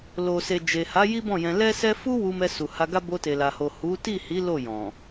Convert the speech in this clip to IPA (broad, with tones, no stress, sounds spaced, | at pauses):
l o˨ s e˨ d͡ʒ e˨ h a˨˦ j i˦ b ɔ̃˦˨ j ɛ̃˧ l ɛ˦ s ɛ˦ f u˦ w u˧ m ɛ˧ s u˨ h a˧ ɡ a˦ b o˧ t e˨ l a˨ h o˨ h u˨˦ t i˦˨ h i˨˦ l o˦˨ j ɔ̃˨